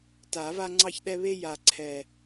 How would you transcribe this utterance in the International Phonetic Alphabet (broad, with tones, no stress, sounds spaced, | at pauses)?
t a˨˩˦ v a˦ ŋ͡ǀ ɑ˦ ç ɗ ɛ˦ β e˦ j a˨˩ ǀʰ ɛ˨˩